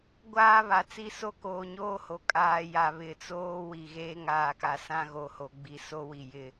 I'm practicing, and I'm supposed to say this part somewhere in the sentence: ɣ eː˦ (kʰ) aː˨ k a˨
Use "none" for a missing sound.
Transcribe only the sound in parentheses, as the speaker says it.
ŋ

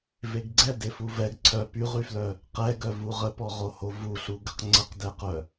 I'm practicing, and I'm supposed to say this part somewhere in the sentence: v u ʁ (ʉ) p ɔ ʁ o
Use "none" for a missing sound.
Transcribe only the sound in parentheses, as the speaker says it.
ə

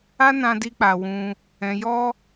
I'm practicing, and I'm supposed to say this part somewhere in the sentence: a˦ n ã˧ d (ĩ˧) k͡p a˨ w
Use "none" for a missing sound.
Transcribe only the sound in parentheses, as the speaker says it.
i˧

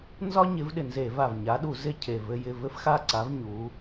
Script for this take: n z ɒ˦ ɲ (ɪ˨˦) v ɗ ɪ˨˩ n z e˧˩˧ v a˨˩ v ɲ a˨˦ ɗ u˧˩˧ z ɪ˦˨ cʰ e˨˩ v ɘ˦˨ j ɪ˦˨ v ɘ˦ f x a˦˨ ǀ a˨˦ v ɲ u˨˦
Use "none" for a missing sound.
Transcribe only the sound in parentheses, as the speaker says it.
ɪ˨˦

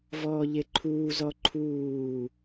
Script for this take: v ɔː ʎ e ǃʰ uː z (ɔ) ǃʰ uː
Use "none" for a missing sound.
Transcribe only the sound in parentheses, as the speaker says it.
ɔ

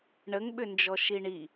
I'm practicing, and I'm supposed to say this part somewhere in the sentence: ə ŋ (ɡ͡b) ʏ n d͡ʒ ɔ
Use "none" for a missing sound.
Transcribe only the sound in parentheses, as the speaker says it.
ɓ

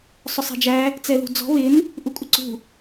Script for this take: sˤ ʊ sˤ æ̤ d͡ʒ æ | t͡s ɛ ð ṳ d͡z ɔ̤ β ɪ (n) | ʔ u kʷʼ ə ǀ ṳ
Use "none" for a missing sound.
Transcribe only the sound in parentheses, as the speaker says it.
n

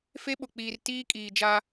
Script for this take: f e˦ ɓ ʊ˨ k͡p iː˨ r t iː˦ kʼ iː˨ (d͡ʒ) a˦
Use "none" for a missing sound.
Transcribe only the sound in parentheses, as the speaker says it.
d͡ʒ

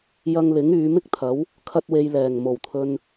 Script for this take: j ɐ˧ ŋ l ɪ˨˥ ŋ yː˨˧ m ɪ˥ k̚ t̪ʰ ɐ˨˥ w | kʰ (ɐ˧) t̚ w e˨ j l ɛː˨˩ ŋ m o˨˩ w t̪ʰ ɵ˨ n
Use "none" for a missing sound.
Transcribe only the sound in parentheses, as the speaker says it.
ɐ˧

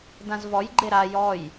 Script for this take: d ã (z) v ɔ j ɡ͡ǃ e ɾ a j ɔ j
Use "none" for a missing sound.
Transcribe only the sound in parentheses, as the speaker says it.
z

